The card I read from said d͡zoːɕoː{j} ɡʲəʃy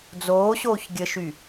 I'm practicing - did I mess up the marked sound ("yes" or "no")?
yes